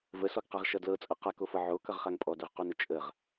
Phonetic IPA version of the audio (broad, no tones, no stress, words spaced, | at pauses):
vəsɔɡqaʁʃʌ dlɤt͡sʼʌ qakofɤ ʕokʌʁχaŋ pʼɔdɵʁqonə t͡ʃʼəʁ